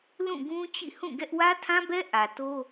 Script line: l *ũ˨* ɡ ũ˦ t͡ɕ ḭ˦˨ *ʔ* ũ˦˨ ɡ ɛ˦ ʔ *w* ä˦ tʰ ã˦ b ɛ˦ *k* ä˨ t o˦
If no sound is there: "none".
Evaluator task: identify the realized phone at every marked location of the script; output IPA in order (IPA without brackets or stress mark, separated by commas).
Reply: ũ˦˨, h, w, ʔ